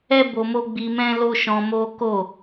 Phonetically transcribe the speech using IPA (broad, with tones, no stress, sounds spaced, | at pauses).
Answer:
ɛ˦ b o˧ m o˦ ɡ͡b i˧ m ɛ̃˦ l o˦ ʃ ɔ̃˧ m o˦ k o˦˨